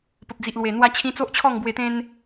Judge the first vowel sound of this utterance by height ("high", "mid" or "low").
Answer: mid